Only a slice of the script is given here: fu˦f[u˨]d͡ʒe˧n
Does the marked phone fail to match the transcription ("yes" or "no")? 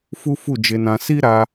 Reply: yes